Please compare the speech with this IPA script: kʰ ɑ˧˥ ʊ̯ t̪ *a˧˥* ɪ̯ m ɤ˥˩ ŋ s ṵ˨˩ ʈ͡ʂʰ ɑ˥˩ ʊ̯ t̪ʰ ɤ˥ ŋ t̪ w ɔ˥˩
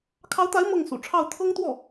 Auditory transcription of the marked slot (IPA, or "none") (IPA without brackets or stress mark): a˧˥